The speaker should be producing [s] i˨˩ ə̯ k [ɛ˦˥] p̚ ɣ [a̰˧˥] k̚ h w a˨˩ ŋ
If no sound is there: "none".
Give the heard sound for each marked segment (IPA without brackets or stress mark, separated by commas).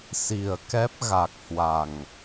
s, ɛ˦˥, a˨˩